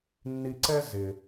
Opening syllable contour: low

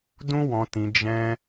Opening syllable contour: high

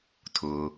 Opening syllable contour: low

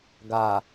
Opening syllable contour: low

